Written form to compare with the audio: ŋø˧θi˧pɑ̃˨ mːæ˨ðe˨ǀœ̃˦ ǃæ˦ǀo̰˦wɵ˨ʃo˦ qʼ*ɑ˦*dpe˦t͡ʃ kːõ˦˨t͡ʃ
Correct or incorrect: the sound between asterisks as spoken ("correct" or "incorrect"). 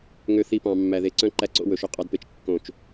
correct